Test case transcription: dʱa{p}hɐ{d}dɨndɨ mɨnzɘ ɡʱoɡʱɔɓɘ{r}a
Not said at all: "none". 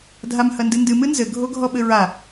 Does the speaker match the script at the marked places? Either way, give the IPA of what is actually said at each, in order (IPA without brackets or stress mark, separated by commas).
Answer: m, n, ɹ